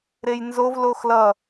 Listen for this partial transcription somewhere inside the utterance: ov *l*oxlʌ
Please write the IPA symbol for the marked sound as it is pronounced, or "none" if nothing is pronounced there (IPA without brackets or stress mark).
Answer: l